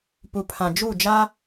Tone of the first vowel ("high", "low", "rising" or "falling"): low